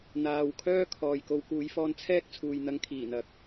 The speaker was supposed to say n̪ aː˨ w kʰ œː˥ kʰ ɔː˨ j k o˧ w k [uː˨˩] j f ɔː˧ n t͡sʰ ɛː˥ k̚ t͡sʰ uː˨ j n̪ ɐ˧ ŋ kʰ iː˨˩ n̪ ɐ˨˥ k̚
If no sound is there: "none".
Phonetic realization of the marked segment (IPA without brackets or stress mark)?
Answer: uː˨˧